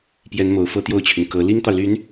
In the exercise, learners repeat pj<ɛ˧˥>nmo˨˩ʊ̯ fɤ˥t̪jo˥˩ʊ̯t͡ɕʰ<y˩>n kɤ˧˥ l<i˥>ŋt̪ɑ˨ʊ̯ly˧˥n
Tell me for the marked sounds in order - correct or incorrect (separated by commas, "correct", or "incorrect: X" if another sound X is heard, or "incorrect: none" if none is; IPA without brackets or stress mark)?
correct, correct, correct